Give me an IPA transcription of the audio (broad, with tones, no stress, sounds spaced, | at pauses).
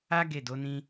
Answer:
a˦ ɡ e˦˨ d o˨˦ n ĩ˦